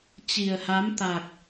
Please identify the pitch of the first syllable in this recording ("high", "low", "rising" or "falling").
low